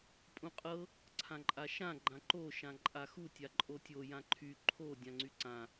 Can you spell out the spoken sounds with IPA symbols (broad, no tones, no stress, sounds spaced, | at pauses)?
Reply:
pʼ ũ qʼ ɤ | ǀʰ ã ǃʼ a ʃ ã ɡ͡ǃ ã ǃ o ʃ ã ǃʼ a x u tʲ a ǃʼ o tʲ o j ã ǃʰ y ǃʰ o dʲ ã ŋ͡ǀ y ǀ ã